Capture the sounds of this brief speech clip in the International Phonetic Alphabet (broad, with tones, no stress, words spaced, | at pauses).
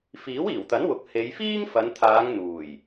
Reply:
fiː˨˥wiː˨˩wt̪ɐ˨˥nwʊ˨k̚ he˨˧j fiː˥ŋfɐ˨˧nt̪ʰaː˨˧ŋ n̪uː˨˩j